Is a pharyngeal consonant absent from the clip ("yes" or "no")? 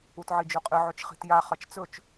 no